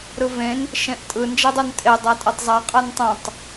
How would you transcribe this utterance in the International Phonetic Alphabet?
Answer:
ɾɯvẽn | ʃẽʔtʼɯ nd͡ʒedˤuntʼe dˤatʼɛtˤzˤa qʼantˤõtˤ

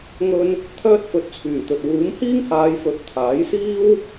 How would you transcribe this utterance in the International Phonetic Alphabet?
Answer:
ŋɵ˥n | t̪ʰœː˧t̚fɵ˨˥t̚ t͡sʰyː˨˩t̪ɵ˨t̚ wuː˨˥mhiː˥ŋhaː˨˧j fɵ˨˥t̚t̪ʰaː˨˥jsiː˥w

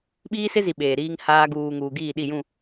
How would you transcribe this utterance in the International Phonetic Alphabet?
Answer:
ɓiː˦sɪ˦zi˨ ɓeː˨ɾiː˦ŋhaː˦ ɡuː˨ŋuː˨ɡiː˦˨ɗi˦˨ jũ˦˨

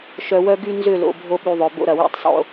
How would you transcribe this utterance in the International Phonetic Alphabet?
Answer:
ʃœ˧wœ˦ɡy˦ nzʏ˦˨lo̰˨ bʱo˦ɓy˧ðˤœ˨ bo̰˦ɾɐ˨ wḭ˧tˤsˤo̰˦

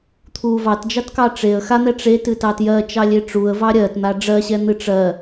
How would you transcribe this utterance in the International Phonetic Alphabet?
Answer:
t̪ʰu vɑtd͡ʒɑtkɑ ʈ͡ʂeə̯ xan̪ɛ ʈ͡ʂetɨtɑ tjɜt͡ʃɑlʲe ʈ͡ʂuə̯vɑ ɾʲɜtn̪a ɖ͡ʐɜɕɛn̪ɨ ʈ͡ʂɜ

